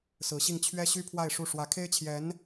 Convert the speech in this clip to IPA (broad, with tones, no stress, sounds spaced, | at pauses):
s ɹ̩˧˥ ɕ i˥˩ ŋ t͡ɕʰ ɥ ɛ˥ ɕ y˥ pʰ w a˥˧ ɪ̯ ʂ u˥˩ ʂ w ä˧˥ kʰ e˥ ɪ̯ t͡ɕʰ j ɛ˧˥ n